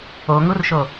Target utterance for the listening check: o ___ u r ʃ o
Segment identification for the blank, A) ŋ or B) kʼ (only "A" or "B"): A